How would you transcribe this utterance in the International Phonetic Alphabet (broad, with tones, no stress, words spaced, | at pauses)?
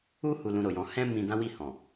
u˦ hu˧lũ˧ɾo˨jɔ̃˧ hɛ̃˦ mĩ˦ dã˦wi˦˨ hɔ̃˨